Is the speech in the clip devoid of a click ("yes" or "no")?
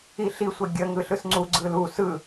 no